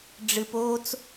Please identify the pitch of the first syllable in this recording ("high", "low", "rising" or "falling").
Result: low